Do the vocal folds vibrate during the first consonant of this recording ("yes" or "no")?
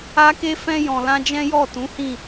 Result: no